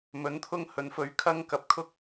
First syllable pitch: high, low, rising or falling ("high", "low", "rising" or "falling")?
rising